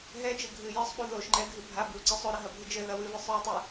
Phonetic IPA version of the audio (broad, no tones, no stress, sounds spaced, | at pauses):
ɦ ɛ d͡ʒ ɘ ɡʱ ɨ j ɘ sˤ ɓ u ð o ʃ ŋ͡ǃ ɛ ɡʱ ɨ bʱ a b ɨ u̯ ǀ ɨ sˤ o ɾ ɐ ɦ ɐ bʱ ɨ d͡ʒ ɘ ð ɐ w ɨ v ɨ sˤ ɹ ɨ tˤ ɨ